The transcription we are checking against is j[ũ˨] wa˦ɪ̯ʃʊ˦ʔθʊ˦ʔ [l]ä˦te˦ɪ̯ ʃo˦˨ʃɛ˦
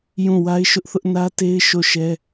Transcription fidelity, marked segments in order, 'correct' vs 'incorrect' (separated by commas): incorrect, incorrect